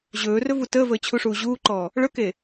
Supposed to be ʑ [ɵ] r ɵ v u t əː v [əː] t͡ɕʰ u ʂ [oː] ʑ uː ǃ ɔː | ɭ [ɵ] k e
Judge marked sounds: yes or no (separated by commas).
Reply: no, yes, no, yes